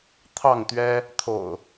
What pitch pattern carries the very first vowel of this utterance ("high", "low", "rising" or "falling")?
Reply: falling